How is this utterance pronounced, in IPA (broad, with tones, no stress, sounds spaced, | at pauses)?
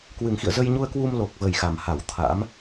k w ɨ˨˩ ŋ x ḭ˧˨ ə̯ z ə˧ j ɲ u˧ ə̯ k w u˧ m l o˨˩ k̚ v ə˨˩ j x a˨˩ m h a˧˩ w t̪ʰ a̰˧˥ m